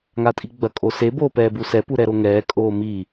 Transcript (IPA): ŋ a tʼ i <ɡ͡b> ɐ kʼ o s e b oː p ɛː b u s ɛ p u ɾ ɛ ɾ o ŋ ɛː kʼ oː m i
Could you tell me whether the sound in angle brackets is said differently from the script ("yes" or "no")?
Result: no